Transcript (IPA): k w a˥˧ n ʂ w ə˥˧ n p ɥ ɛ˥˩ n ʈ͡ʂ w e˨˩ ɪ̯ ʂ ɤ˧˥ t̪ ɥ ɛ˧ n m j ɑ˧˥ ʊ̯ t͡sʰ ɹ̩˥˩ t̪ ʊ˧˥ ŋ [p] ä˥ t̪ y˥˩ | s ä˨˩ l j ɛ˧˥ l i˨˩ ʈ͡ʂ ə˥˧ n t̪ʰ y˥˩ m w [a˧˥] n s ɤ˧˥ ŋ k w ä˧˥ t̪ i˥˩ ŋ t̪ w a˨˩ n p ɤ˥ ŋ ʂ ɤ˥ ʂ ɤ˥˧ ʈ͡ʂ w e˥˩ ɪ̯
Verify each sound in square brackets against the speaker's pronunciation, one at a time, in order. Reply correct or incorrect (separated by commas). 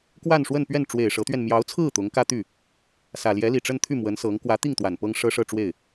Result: incorrect, incorrect